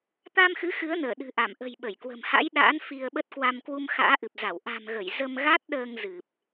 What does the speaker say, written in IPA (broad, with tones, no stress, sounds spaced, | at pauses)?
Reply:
t̪ a˧ m x ɨ˨˦ x ɨ˨˦ ə̯ n əː˧˩ ɗ ɨ̤˨˩ ʔ a˧˩ m ʔ ə̤˨˩ j ɓ ə˧˩ j k w ə̤˨˩ m h a̰˧˥ j ɗ a̰ː˧˥ n f i˧ ə̯ ɓ ə˦˥ t̚ k w a˧ m k w u˧ m x a̰ː˧˥ ʔ ɨ˨˩ p̚ z a˧˩ w ʔ a̤˨˩ m ɣ ə˧˩ j z ə˧ m ɣ a˦˥ t̚ ɗ əː˧ ŋ z ɨ˨˩ p̚